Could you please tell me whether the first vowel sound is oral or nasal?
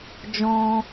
nasal